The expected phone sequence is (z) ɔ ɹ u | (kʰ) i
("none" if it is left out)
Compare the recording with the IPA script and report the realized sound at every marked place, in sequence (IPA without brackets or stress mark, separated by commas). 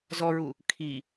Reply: z, kʰ